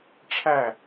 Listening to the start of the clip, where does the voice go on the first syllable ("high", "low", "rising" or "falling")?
falling